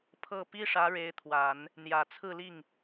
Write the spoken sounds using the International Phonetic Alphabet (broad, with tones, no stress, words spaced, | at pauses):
pʰɤ˥˩ pi˥ʂä˧˥ ɻe˧˥ɪ̯t̪ʰwa˨˩˦n | n̪jä˨˩t͡sʰɹ̩˥˧li˥˩ŋ